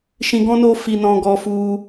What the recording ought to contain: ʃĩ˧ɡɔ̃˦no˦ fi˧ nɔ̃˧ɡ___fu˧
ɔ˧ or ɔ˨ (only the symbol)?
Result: ɔ˧